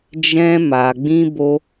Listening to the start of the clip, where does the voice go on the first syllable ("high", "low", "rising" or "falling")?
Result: high